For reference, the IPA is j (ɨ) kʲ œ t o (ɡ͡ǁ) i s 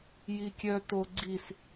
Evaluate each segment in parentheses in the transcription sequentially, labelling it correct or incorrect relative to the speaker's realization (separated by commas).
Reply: incorrect, incorrect